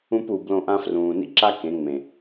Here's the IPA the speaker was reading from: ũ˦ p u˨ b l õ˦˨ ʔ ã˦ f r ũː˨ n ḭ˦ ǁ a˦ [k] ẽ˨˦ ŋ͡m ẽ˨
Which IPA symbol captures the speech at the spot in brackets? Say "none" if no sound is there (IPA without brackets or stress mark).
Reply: k